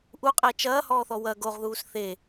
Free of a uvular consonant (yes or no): no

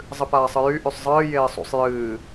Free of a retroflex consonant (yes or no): yes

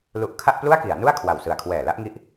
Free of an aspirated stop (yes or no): no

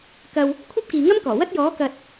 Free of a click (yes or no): yes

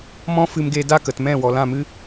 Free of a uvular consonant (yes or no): yes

